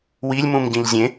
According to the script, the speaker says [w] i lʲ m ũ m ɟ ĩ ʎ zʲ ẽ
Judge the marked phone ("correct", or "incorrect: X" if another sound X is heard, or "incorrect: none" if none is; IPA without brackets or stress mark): correct